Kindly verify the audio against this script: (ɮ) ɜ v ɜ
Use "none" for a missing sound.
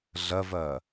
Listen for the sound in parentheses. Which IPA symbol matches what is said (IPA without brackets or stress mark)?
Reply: ɮ